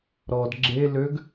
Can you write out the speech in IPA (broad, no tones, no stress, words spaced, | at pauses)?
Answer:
ɾɔd ɡ͡ǁe løɡ